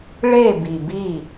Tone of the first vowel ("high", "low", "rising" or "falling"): falling